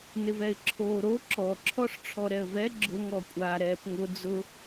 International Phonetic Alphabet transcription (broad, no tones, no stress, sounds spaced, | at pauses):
n ɪ v ɛ ɪ̯ ǁʰ oː ɾ o ǁ ɔ ǁʰ ɔ ʂ ʈ͡ʂʰ ɔ ɾ ɛ ə̯ v ɛ ɡ͡ǁ ʊ ŋ ɔ kʷʼ a ɾ ɛː p ŋ ʊ d͡z ʊ